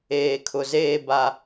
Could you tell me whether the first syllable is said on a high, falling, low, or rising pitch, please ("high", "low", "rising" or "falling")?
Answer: low